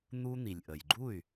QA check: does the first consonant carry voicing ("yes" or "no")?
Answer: yes